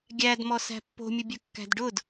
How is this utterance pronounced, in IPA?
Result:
ɡʲ æ d m ɔ s æ̤ pː o̤ mʲ ʊ bʲ œ kː æ̤ d ɖ ʊ d

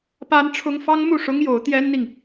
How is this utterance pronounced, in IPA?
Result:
p a˥ n ʈ͡ʂʰ ʊ˥ ŋ f ɑ˥ ŋ m u˥˩ ʂ ʊ˥ ŋ j o˧˥ ʊ̯ t̪ j ɛ˥ n n̪ i˨ ŋ

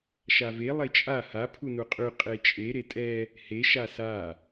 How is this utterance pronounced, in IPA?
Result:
ʃ a v e lˠ e t͡ʃʼ a h a pʰ u n u qʼ y qʼ e t͡ʃʼ e ɾ e tʼ ɛ | h e ʃ a s a

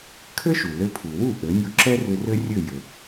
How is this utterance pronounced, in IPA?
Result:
kʰ ɘ˥ ʃ u˩ l ɘ˧ pʰ u˩ w u˥˩ ʔ ɘ˩˥ nʲ u˧ ǁ ɛ˥ r ʏ˧ r ɘ˥ rʲ ɘ˥˩ j ɘ˩

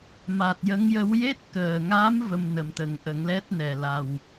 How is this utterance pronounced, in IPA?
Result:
m a˨˩ t̚ j ə˧˥ ŋ j ə˧˥ w j e˦˥ t̚ k əː˨˩ ŋ a˧˥ m v ə˧ m n ə˨˩ m t̪ ə˨˩˦ ŋ ʔ ə˨˩˦ ŋ l ɛ˦˥ t̚ n ɛ˨˩ l a˨˩ w

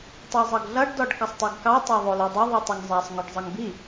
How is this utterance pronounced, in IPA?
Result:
tˤ ɑ zˤ ʌ ɡ ɮ ʌ ɖ d ɔ ɖ k ʌ sˤ tˤ i ɡ k ɑ tˤ ɑ ðˤ o l o dˤ ʌ ðˤ ɨ tˤ o ŋ zˤ a sˤ ŋ o ɖ zˤ ʌ ŋ b i

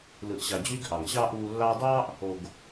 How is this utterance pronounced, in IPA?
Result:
l ɯ˨ ʔ ɕ ɑ˨ d͡ʑ yː˧ ɡ ʔ ɑ˨ ŋ ɕ ɑː˦ ʔ uː˧ lː ɑː˧ dˤ ɑː˦ ʔ | o˨ ɡ

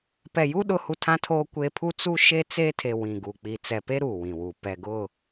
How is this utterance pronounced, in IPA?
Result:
p ɛ˨ j u˦ ɗ ʊ˦ h u˦ tʰ ã˦ tʰ oː˦ kʷ e˦ pʰ u˦ t͡s u˦ ʃ e˦ t͡s e˦ tʰ e˨ w ĩ˨ ɡ u˨ k͡p i˨ t͡s ɛ˨ p e˦ ɾ uː˨ w ĩ˨ w u˨ p ɛ˨ ɡ ʊ˦˨

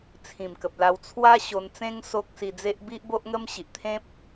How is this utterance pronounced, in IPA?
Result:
t͡sʰ ĩ˨˩ m k ə˨ p̚ l a˧ w t͡sʰ w a˦ ɕ o˧ n t͡s ẽ˦ ŋ s o˦ k̚ s i˧ d͡z e˦ ʔ b i˦ ʔ b o˦ ʔ ŋ ə˦ m ɕ i˨ ʔ t̪ʰ ẽ˦ p̚

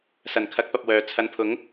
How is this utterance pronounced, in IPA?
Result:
s ɐ˨˩ n kʰ ɐ˨˥ k̚ p ɐ˨ p̚ w œː˨ t͡sʰ ɐ˨˧ n pʰ ʊ˨˥ ŋ

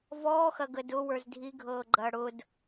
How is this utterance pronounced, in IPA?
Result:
v ɔː x ɐ ɡ ə d ʊ w ə˞ z dʱ i ɡʱ ɤː ɡ͡ǃ ɐː ɽ ʊ d

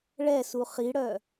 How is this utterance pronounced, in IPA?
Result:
ɭ ɛ s u χ i ɽ œ

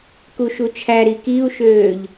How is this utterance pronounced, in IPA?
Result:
k u ʃ u t͡ʃʰ æ ɾ i k i u̯ ʃ øː ʎ

